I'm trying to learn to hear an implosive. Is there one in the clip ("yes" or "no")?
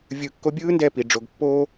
no